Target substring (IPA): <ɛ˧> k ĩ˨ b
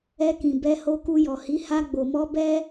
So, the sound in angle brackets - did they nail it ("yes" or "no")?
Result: yes